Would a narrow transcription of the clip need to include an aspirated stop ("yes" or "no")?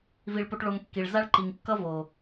no